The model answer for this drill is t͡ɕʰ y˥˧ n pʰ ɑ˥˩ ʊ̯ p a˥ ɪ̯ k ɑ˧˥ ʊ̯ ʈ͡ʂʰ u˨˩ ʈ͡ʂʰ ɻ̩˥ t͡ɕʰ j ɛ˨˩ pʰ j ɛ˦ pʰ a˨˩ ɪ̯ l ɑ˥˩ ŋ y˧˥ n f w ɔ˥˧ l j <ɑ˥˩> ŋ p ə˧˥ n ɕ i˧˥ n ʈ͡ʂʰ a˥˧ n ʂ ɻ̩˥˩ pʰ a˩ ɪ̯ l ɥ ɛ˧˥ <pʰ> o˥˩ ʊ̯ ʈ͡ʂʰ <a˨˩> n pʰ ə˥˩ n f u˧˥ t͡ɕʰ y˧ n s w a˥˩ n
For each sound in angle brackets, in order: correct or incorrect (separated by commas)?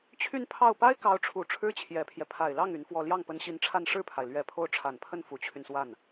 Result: correct, correct, correct